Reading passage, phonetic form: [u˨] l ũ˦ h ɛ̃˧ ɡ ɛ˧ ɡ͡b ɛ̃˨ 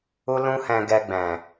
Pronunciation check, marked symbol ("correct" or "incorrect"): incorrect